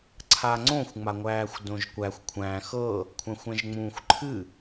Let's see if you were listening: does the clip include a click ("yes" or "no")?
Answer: yes